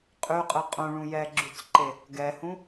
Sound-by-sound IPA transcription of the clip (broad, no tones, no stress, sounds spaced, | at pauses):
qʼ y qʼ ɯ qʼ ũ ɭ ũ j ɛ ɡ͡ǁ y t͡s ǃ e | ɡ ɛ h ũ